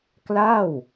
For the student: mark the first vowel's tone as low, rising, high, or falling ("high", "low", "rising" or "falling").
falling